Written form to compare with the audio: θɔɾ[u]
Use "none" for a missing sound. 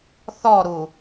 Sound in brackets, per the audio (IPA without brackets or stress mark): u